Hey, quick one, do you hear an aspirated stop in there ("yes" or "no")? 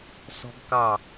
no